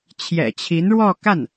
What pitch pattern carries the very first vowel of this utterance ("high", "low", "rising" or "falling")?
low